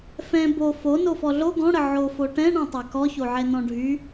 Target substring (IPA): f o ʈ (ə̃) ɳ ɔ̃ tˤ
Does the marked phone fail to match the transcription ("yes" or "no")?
yes